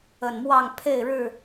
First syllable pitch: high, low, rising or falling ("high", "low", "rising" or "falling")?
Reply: low